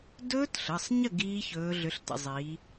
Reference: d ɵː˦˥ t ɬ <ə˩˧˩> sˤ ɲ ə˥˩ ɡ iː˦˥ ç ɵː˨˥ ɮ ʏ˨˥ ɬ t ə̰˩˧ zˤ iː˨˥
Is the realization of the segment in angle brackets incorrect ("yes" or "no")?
no